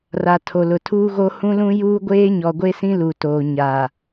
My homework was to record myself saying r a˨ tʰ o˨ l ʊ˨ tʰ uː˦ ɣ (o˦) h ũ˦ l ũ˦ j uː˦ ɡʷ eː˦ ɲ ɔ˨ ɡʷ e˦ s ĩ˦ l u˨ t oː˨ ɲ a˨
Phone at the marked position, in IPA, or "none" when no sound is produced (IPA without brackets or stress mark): o˦